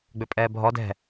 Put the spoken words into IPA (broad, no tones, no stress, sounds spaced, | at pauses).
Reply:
ɡ͡b ʏ pʼ ɛː bʱ ɔ d ɛ̤